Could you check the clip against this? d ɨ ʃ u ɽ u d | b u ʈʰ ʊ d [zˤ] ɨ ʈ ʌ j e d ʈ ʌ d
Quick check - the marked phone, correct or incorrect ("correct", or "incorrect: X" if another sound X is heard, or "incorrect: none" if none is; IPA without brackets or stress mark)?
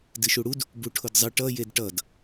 correct